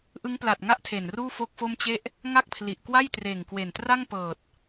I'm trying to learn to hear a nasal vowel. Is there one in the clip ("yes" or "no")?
no